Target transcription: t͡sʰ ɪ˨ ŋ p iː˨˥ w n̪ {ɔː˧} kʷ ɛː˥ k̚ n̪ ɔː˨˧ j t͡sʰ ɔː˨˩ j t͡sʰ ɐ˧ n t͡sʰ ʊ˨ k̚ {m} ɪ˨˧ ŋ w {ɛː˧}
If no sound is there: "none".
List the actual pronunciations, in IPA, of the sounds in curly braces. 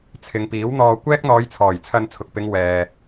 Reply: ɔː˧, p, ɛː˨

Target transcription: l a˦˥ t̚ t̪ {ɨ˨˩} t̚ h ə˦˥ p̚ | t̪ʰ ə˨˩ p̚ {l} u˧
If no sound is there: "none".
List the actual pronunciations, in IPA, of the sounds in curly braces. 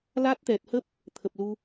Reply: ɛ˨˩, l

